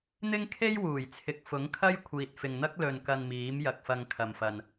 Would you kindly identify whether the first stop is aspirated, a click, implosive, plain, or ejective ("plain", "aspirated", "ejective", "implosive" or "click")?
aspirated